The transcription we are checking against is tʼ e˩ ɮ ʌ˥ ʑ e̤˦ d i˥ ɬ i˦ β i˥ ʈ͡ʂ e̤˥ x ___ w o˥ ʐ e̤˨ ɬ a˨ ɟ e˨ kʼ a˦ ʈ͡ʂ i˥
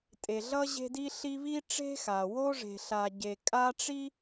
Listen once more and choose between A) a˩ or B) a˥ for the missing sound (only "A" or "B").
A